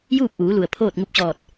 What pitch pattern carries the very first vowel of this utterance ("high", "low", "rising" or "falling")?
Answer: falling